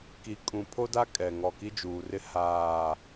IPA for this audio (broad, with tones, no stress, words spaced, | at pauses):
ki˨ kʼũ˨pʰo˦da˦ kʼɛ˨ ŋɔ˨ki˦d͡ʒuː˨rɪ˦ haː˦˨